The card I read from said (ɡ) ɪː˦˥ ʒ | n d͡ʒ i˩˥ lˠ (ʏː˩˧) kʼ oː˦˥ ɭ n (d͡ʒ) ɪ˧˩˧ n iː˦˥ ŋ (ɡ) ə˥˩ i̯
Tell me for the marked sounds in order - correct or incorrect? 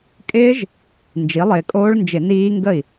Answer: incorrect: kʼ, incorrect: ɪː˩˧, correct, correct

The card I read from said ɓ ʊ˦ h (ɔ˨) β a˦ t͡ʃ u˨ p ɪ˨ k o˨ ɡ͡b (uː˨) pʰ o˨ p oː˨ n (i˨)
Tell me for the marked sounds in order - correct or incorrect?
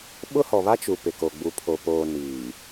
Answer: correct, incorrect: u˨, incorrect: iː˨

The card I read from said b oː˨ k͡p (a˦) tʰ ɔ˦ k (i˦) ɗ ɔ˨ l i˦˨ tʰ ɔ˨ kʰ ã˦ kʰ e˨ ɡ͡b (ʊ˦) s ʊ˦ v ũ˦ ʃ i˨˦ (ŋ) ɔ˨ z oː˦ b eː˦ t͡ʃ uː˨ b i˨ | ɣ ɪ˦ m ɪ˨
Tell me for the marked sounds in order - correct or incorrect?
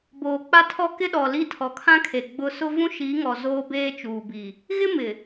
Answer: correct, incorrect: ɪ˦, correct, correct

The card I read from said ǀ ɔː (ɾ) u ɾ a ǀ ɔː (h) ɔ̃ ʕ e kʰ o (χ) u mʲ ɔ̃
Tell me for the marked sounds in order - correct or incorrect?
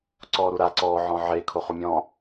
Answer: correct, incorrect: ʕ, correct

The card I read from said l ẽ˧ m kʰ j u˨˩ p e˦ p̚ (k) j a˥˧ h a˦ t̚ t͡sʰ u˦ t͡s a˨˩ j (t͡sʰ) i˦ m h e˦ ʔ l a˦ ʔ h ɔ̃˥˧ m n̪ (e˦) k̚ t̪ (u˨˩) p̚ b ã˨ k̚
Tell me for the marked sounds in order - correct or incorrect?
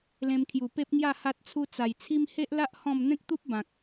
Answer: incorrect: ŋ, correct, incorrect: ẽ˦, incorrect: u˦

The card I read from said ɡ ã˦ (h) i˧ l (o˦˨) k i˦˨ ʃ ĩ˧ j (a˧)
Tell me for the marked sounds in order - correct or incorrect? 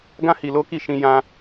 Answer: correct, incorrect: o˦, incorrect: ã˧

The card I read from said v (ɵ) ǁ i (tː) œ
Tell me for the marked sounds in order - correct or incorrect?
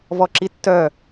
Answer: incorrect: ɔ, correct

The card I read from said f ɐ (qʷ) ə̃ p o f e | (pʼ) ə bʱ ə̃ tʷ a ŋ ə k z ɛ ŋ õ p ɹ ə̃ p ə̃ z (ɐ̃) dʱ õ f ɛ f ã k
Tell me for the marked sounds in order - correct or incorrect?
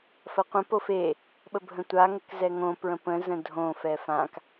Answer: correct, incorrect: ɓ, incorrect: ə̃

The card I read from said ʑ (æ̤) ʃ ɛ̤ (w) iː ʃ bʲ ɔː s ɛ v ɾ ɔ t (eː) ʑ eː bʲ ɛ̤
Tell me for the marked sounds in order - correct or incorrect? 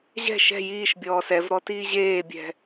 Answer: incorrect: ɛ̤, incorrect: j, incorrect: iː

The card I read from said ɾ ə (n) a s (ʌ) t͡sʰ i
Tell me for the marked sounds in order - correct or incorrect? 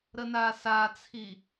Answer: correct, incorrect: a

